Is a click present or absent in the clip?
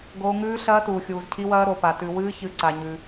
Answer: present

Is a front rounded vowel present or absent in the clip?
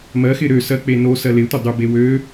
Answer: present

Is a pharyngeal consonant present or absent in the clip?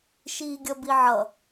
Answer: present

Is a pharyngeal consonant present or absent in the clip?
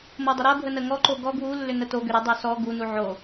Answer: present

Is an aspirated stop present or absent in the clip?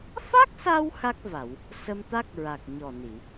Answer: absent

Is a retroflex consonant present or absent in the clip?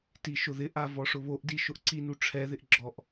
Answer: present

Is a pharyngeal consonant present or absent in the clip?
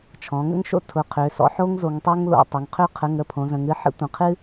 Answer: present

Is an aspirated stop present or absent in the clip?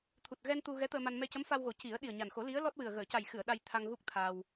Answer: present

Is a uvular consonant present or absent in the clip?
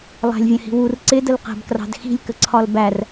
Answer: present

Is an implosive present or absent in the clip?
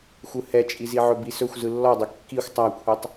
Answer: absent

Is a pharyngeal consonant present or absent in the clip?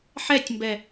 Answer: present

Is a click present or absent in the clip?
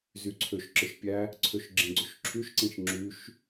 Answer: present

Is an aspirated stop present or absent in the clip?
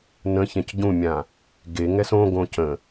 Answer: absent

